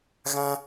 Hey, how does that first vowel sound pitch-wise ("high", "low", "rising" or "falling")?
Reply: high